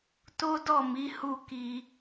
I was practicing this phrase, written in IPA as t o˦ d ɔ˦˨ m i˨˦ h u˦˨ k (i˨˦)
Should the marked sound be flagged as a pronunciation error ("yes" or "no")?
yes